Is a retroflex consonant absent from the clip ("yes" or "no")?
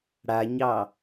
no